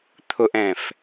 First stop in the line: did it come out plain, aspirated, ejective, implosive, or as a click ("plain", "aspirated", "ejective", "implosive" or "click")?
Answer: aspirated